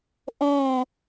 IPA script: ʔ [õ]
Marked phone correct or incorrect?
correct